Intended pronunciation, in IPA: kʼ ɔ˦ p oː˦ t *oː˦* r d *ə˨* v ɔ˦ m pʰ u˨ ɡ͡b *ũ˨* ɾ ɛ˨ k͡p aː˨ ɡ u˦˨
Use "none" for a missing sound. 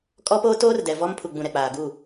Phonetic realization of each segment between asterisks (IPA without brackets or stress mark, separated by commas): oː˦, ɛ˨, ũ˨